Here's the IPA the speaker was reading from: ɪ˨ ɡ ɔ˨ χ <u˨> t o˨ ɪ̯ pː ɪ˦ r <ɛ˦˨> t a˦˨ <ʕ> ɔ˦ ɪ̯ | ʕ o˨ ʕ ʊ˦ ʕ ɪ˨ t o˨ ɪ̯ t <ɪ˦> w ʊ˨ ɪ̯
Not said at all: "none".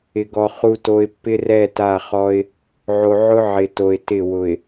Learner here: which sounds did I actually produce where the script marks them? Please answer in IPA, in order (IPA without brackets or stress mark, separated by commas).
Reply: u˨, ɛ˦˨, χ, ɪ˦˨